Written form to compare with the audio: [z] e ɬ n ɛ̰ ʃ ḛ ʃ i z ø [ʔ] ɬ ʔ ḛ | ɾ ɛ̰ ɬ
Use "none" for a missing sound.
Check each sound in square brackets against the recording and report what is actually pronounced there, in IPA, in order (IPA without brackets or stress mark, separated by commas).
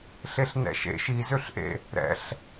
ɬ, none